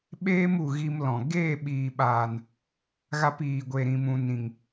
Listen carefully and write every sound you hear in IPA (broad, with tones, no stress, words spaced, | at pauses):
ɓeː˦mu˨ ɣi˧m lɔ̃˨ ɡeː˦˨ɓiː˨ɓaː˨n | ɣa˧p iː˨ɡʷe˨ɾĩ˨mũ˨ nĩ˨ŋ